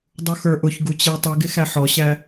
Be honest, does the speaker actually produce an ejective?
no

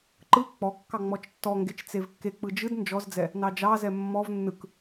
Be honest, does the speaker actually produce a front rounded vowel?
no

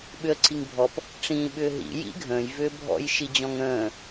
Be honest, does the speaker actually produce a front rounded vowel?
yes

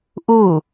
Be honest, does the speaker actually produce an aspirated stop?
no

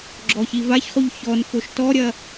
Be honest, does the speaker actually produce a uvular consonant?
yes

